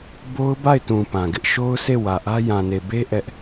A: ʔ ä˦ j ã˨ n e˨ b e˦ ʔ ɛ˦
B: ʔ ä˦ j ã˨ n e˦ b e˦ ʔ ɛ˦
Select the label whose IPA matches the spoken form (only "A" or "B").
A